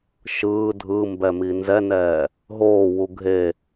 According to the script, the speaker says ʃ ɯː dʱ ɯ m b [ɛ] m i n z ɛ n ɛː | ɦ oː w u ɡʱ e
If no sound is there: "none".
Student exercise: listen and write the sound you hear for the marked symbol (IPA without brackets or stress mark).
ɛ